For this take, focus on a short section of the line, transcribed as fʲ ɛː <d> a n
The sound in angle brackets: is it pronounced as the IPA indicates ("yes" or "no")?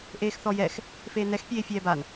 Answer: no